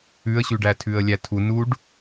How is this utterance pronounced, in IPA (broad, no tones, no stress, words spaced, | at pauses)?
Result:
ʉə̯ɕʉɖæ tʰʉə̯lʲætʰu nuɖ